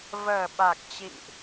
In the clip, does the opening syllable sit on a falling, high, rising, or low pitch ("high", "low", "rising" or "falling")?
low